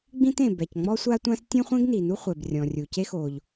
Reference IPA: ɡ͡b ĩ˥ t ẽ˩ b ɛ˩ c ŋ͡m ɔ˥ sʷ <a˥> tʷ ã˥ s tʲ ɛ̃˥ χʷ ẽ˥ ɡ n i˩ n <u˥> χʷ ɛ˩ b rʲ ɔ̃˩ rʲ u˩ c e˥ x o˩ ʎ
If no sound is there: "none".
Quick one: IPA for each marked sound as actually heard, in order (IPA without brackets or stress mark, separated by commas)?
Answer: a˥, u˥